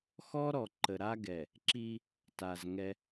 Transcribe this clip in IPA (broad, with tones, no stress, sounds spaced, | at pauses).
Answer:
x ɔ˦ ɾ ɔ˨ ǃ ə˨ ɾ a˦ ɡ ɛ˨ | ǁ i˦ | t a˨ z ŋ ɛ˦